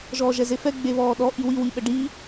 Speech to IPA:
ʒɔːʒɛzefɛ ɡ͡beβɔːɗɔ ʔiwi wiɓəɖiː

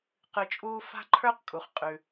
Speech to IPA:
qɨ˧t͡ʃʼuː˥ fa̤˥ǃʰə˞˥qkʼu˩χ qʼʉ˩

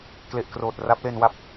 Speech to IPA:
kle˨˩ʔkroː˨˩t̚ ra˦˥p̚le˧nwa˦˥p̚

